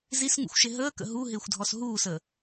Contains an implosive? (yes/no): no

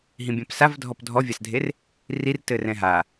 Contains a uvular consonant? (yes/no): no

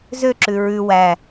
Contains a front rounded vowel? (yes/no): yes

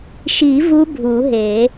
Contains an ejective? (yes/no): no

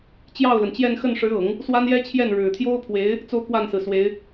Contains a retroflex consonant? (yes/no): yes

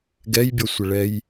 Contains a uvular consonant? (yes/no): no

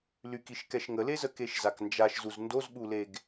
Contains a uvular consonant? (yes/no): no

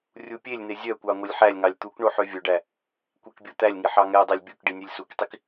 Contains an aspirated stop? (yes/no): no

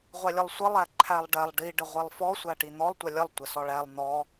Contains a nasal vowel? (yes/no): no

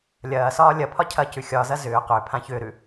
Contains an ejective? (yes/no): no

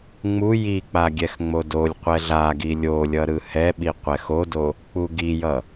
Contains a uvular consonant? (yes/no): yes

